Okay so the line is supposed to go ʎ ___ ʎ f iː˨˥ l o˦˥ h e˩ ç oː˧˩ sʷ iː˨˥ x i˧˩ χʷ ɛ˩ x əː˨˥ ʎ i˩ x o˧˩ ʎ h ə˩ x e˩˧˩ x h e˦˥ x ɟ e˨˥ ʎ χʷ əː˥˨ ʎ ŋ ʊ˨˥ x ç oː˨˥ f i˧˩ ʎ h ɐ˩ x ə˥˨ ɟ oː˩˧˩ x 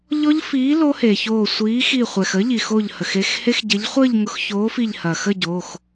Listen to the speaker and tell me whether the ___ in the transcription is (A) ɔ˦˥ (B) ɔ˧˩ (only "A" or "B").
A